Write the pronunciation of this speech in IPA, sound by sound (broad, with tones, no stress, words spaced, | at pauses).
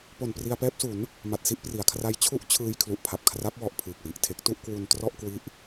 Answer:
po˨˩n pri˧a̯pɛː˦˥p̚su˩˦n | ma˨˩t̚si˥˩ʔpri˩˦a̯kʰra˦˥j t͡ɕʰu˥˩ʔt͡ɕʰɯː˧jkʰlu˨˩ʔ pʰa˨˩p̚kʰra˦˥p̚wɔ˨˩ʔ pʰɯː˨˩k̚wi˨˩ʔtʰe˦˥k̚ tu˥˩ʔkwu˧ntrɔ˥˩ʔ kwi˦˥ʔ